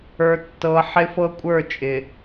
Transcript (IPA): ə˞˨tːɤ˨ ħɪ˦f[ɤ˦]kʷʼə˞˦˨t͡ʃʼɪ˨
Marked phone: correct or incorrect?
correct